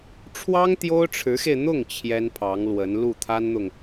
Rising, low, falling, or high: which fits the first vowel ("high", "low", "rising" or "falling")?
high